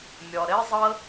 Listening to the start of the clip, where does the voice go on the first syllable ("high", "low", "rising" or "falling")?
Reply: low